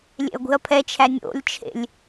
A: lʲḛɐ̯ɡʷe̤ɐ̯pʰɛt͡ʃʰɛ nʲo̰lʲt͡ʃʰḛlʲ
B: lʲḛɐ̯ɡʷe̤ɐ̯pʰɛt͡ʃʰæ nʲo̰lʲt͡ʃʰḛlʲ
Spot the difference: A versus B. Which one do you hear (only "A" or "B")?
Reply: B